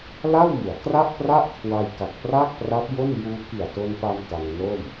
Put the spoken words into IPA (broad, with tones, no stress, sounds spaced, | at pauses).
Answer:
l a˥˩ w m u˩˦ a̯ k r a˥˩ ʔ p r a˥˩ ʔ kʰ w a˧ j k a˨˩ k̚ p r aː˥˩ k̚ p r a˦˥ p̚ j o˥˩ n j uː˧ k i˨˩ a̯ t o˧ n p a˧ m t a˧ ŋ n o˥˩ m